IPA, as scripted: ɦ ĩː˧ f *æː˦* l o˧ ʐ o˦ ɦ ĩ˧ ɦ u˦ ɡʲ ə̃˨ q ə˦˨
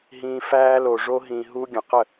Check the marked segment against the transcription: correct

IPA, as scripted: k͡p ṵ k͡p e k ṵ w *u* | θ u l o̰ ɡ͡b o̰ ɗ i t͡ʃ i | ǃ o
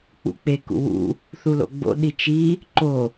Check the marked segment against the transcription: incorrect: ṵ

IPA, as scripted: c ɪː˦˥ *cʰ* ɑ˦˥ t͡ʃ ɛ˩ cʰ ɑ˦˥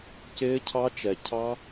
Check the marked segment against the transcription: correct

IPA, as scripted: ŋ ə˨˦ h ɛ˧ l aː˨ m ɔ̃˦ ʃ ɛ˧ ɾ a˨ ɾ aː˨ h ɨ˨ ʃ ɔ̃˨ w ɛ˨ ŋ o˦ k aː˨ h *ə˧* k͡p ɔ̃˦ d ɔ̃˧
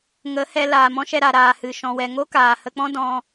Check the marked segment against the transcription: correct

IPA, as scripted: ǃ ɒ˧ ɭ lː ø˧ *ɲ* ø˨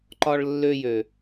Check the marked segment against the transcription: incorrect: j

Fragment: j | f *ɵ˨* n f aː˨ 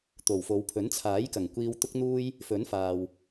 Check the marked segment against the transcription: incorrect: ɵ˨˥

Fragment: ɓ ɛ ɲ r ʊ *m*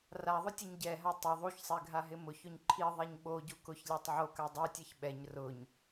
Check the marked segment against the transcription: incorrect: ɲ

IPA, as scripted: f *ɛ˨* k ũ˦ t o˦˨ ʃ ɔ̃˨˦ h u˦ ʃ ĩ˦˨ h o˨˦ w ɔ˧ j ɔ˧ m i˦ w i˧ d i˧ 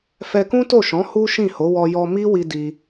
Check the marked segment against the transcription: incorrect: ɛ˧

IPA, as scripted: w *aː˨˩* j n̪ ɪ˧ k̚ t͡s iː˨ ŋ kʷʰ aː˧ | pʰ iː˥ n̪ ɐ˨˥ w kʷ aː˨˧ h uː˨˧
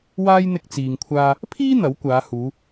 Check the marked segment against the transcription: incorrect: aː˥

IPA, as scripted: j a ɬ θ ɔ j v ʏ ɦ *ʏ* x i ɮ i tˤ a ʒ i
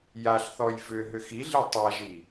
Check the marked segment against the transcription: correct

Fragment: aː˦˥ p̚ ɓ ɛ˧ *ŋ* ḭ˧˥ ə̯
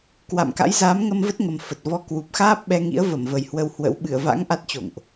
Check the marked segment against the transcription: correct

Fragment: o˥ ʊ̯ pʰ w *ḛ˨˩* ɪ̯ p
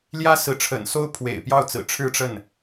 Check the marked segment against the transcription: correct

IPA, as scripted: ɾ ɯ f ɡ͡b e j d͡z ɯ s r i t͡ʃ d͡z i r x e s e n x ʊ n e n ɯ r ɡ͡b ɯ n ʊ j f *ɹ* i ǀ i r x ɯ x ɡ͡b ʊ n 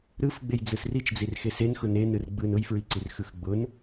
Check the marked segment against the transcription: correct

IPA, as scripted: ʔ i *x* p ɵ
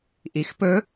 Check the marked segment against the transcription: correct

